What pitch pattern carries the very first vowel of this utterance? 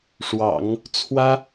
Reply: low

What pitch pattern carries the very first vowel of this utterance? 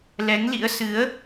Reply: rising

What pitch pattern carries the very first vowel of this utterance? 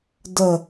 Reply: falling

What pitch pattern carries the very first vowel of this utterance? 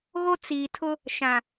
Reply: high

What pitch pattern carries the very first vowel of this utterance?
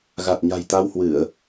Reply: low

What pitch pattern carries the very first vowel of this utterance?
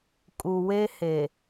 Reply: low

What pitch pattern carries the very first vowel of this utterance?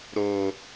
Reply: low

